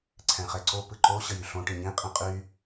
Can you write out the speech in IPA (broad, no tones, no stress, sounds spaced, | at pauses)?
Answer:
ǀʰ ɛ̃ χ ɛ ǀ o p ɯ ǃ o ɕ ə j y ɬ õ ʈ ĩ ɲ ĩ qʼ ĩ qʼ y